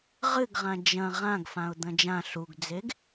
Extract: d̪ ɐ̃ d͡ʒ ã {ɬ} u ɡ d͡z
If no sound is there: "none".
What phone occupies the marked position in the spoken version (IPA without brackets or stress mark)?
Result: ɬ